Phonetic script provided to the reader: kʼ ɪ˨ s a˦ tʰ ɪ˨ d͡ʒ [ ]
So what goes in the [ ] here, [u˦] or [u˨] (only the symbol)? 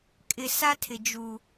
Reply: u˨